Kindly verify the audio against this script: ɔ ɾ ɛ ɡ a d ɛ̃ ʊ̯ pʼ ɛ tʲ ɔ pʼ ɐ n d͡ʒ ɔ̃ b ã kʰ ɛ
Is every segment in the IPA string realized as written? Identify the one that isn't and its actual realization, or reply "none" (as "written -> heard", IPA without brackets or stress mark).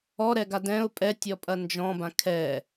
none